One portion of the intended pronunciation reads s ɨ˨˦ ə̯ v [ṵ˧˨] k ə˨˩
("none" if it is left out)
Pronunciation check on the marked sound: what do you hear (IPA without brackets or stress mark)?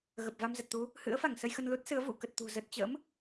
ṵ˧˨